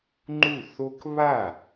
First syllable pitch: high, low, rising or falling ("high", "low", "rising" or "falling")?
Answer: falling